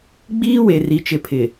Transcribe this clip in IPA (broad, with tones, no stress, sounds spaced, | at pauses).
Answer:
ɡ͡b iː˦ w e˨ r i˨ t͡ʃ ɪ˨ pʰ ɪ˨